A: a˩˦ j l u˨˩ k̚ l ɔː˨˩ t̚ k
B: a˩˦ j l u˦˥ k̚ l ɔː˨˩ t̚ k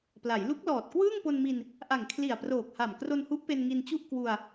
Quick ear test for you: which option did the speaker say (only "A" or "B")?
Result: B